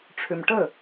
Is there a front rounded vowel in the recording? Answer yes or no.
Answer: yes